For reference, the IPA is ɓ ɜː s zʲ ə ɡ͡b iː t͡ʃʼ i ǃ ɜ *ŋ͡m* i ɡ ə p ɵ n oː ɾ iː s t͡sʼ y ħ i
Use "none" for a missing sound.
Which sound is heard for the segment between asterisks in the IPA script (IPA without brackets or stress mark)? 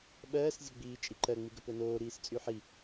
ŋ͡m